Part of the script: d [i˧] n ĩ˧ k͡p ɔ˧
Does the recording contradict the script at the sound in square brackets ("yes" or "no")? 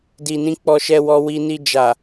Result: yes